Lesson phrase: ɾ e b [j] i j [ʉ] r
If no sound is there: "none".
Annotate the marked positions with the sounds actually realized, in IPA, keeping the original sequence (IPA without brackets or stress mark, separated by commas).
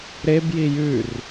j, ʉ